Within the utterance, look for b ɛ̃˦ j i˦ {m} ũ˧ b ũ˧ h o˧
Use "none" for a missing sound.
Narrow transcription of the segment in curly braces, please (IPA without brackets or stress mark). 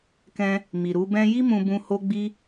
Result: m